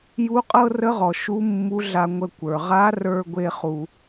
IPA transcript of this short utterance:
j u˧˥ qʼ ɤ˥ r ə˧˥ ʁ ɔ˩ ʃ u˧˥ mː u˧˥ ɮ a˧ ŋʷ ə˧ kʷ ə˞˩ ʁ a˧˥ r ə˞˧ ɡʷ e˥ χ u˧

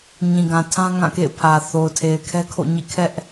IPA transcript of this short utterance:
ɲ ĩ˨ ɡ ã˨ tʰ ã˦ ŋ ã˦˨ k ḛ˦˨ ɪ̯ pʰ ä˨ θ o˨ ʊ̯ tʰ e˨ ɪ̯ kʰ ɛ˦ kʰ o̰˦˨ ɲ ḭ˦˨ kʰ ɛ˦ ʔ

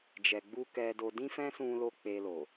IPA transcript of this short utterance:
d͡ʒ ɛ˨ ɡ͡b u˧ k ɛ˧ d o˧ d ĩ˦ f ɛ̃˦ s ũ˧ l o˧ k͡p e˧ l o˨

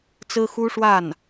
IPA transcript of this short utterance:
t͡s ɹ̩˥ x u˥ ʂ w a˥˩ n

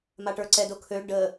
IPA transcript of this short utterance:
m a ʈ ə˞ ǀ ɛ d o kʰ ø ɖ ə

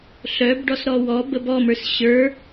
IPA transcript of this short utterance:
ɬ œ b ɖ ɔ s ɾ ɔ w ɔ b ə b ɔ m ə˞ s ɕ ə˞

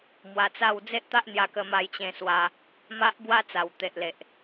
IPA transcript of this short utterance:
m w a˧ t͡s a˥˧ w d͡z e˦ ʔ t̪ a˦ ʔ n̪ j a˧ k ə˧ m a˧ j t͡ɕ ẽ˧ s w a˧ | m a˦ ʔ b w a˦ t͡s a˨˩ w t̪ e˨ ʔ l e˨ ʔ

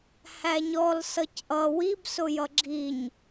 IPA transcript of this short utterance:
h æ ɲ ɔ l s ʌ c ʔ ʌ w i b s ʊ j ʌ ɡ͡ǁ i ɲ

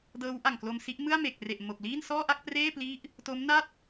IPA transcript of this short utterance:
d ɤː˦˥ w ʔ a˨˩ ŋ k l o˧ m s i˦˥ ʔ m ɯ˥˩ a̯ m e˨˩ k̚ r e˨˩ ʔ m o˨˩ k̚ l iː˥˩ n s ɔː˥˩ ʔ a˥˩ k̚ p r eː˥˩ p l i˦˥ ʔ | t o˦˥ m n a˥˩ t̚

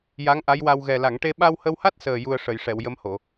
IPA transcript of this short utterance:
j a˧˥ ŋ ʔ a˧˥ j w a˧ w ɣ ɛ˨˩ l a˨˩˨ ŋ ʈ e˧ ɓ a˧ w h ə˧ w h a˦˥ t̚ s əː˨˩ j u˧ ə̯ ʂ ə˨˩˨ j ʂ ɛ˨˩˨ w j ə˧˥ m h o˨˩˨

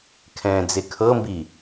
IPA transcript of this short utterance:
kʰ ɛ̃ː d͡z e kʰ ɤ m b i

